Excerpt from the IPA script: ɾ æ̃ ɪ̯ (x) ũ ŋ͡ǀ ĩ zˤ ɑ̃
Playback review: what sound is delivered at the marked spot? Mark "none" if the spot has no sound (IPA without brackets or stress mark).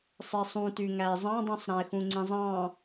x